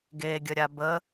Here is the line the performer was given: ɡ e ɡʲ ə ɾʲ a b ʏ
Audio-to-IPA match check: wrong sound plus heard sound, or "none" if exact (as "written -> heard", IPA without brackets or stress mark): ʏ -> ə